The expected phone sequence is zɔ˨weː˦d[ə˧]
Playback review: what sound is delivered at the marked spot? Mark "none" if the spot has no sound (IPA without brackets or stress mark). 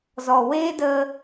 ə˧